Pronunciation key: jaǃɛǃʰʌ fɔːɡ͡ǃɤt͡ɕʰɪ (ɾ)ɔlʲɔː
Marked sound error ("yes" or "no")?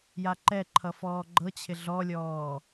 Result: yes